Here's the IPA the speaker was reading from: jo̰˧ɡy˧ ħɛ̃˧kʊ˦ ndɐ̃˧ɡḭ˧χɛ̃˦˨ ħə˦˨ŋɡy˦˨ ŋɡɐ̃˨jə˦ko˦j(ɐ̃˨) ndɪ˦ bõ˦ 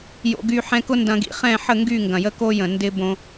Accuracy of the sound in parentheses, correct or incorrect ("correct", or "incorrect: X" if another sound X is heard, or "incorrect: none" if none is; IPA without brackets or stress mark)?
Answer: incorrect: ə̃˨